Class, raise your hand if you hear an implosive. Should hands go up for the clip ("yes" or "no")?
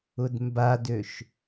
no